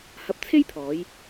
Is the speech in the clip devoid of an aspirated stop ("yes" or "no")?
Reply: no